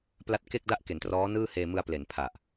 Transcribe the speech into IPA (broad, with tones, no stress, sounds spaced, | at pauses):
p l a˦˥ t̚ k e˥˩ k̚ d a˥˩ ʔ k e˩˦ n t r ɔː˦˥ n ɯː˥˩ h eː˧ m ɯ˧ a̯ p l e˩˦ n pʰ a˨˩ ʔ